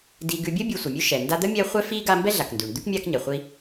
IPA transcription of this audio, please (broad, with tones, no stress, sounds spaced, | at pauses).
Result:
d i˨ ɡ ʉ˨ bʲ ə˥ bʲ ʉ˨ sʷ ə˩ mʲ ʉ˦ ʃ ɛ˩ n d a˦ d̪ ə˥ mʲ ɛ˦ χʷ ɛ˦ f i˥ ɡ a˦ m b ɛ˥ ɮ a˩ k n d ʉ˩ ɳ d̪ ʉ˥ k mʲ a˦ k ɲ ɛ˩ χʷ i˦